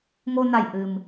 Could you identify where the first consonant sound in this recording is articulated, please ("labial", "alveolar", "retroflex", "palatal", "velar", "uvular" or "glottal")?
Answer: velar